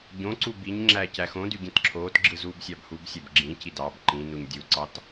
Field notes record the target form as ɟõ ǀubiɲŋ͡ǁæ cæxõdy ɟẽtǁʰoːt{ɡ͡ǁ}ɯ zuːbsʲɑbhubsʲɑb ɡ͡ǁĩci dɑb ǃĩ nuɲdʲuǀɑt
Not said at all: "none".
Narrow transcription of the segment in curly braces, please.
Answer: ɡ͡ǁ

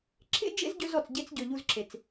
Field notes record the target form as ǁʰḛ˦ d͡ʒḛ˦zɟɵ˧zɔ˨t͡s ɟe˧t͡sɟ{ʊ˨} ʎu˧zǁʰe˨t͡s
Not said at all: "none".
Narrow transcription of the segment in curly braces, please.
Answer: ɵ˨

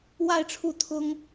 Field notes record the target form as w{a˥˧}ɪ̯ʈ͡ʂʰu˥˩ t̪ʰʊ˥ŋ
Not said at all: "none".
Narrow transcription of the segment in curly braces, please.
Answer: a˥˧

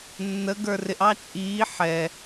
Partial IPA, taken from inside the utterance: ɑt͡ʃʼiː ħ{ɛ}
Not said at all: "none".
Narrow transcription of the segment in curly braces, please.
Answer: ɛ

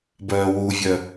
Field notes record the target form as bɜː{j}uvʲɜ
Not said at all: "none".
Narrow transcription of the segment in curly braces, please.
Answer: w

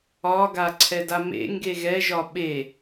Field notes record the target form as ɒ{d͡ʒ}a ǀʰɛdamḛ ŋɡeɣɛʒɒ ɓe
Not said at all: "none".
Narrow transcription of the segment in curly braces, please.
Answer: ɡ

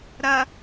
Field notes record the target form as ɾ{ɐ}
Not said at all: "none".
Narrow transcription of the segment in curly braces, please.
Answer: ɐ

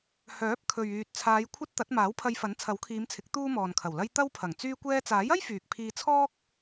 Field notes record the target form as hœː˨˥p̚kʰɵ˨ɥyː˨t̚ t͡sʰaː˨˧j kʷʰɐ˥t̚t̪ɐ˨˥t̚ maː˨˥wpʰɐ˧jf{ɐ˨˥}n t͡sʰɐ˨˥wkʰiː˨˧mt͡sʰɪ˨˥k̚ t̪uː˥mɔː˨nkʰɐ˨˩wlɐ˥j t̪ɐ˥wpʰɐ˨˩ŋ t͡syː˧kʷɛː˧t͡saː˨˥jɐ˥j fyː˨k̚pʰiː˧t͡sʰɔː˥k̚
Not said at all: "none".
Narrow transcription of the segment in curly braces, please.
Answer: ɐ˨˥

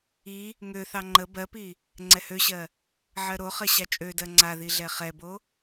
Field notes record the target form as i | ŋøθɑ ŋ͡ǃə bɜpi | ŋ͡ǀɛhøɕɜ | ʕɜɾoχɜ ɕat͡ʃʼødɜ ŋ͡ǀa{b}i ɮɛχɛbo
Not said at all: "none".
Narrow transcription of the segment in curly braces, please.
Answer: ð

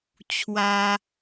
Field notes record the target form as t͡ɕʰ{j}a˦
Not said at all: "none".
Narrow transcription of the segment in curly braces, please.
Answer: w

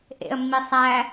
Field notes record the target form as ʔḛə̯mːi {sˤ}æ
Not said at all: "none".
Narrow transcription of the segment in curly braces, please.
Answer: sˤ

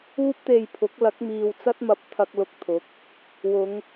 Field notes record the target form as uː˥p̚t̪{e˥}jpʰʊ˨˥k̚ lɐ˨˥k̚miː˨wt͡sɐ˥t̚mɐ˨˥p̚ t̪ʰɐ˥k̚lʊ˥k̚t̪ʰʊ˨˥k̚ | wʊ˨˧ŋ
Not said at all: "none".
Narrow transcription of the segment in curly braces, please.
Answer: e˧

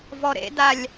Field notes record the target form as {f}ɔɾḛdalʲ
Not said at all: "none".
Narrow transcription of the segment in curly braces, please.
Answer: v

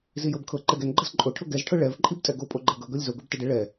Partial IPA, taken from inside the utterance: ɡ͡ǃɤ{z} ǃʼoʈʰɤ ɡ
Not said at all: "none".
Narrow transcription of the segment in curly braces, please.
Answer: z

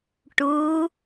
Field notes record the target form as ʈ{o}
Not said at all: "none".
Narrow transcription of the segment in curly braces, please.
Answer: u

